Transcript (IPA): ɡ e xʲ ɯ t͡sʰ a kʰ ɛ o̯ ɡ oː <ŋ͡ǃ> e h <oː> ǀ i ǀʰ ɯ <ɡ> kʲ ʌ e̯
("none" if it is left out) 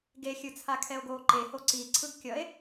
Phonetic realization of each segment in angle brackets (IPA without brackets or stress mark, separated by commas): ǃ, o, ɡ